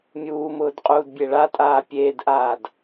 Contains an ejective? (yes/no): yes